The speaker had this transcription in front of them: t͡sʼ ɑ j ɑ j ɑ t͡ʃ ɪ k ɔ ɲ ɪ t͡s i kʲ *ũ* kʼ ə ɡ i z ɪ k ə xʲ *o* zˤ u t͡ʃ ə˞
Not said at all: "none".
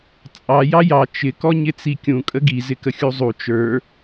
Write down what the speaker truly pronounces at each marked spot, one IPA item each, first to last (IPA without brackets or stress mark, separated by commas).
ũ, u